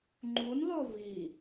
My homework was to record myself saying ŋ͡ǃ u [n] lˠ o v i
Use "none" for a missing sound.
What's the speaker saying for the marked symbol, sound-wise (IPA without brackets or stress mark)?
n